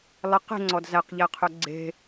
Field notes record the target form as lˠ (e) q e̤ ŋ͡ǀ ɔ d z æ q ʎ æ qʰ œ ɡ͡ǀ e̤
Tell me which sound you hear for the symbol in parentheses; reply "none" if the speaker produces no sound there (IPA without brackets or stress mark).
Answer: e